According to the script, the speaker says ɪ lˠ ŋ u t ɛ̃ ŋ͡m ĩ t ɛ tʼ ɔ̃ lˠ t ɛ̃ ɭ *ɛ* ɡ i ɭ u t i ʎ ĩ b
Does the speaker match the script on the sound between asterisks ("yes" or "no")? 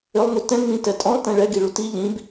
yes